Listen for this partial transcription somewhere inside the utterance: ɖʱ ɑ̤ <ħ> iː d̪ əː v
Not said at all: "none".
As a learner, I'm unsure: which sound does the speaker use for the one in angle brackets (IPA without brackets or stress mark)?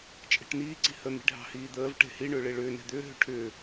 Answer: h